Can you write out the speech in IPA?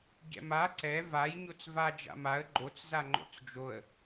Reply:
ɟ ɛ̰ m a ǀ ɛ v a j ɲ o t͡s v a d͡ʒ a̰ m a ə̯ ɡ͡ǃ o t͡s z a ŋ͡ǃ o̰ t͡s d͡ʒ o ə̯

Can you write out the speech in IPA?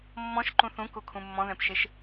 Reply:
mː ɔ̃ ʃ ǃ ũ θ ũ k u kʰ ũ mː ɔ̃ ð ɛ̃ p ʃ e ʃ

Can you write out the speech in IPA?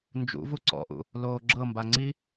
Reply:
n d͡ʒ ṵ v u ǀ ɔ̰ ʔ ṵ | l oː ɡ͡ǁ ɤ m b a ŋ͡ǀ i

